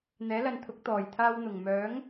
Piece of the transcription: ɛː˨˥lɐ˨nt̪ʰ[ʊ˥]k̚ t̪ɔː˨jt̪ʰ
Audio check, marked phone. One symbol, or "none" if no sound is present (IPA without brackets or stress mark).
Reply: ʊ˨˥